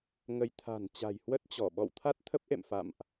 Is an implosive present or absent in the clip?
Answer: present